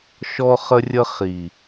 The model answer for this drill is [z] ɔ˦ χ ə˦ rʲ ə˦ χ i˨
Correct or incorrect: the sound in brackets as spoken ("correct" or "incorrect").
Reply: incorrect